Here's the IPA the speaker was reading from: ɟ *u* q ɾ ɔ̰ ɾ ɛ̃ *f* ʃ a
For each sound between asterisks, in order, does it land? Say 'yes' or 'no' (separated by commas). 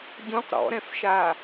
no, yes